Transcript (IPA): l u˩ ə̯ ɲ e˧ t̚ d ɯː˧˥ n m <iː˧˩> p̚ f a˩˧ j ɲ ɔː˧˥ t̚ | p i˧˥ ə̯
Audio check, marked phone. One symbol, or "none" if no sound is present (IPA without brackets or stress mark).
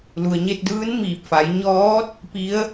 iː˧˩